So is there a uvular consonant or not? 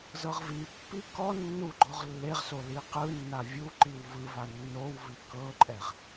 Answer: yes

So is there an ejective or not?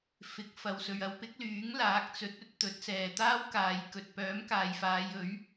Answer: no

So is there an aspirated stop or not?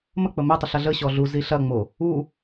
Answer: no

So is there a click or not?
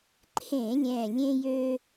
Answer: yes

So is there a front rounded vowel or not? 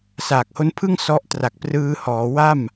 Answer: no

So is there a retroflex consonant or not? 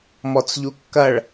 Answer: yes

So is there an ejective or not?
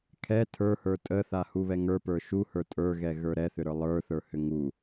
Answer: yes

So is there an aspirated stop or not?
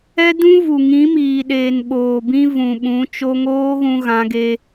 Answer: no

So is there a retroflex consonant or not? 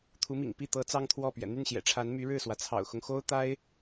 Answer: yes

